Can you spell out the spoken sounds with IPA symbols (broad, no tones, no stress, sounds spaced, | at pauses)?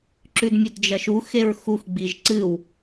ǁ ʉ d mʲ ɵ d d͡ʒ ɐ ʃ u x e ɹ x u x ɡ͡b i ʒ ǀ ɨ w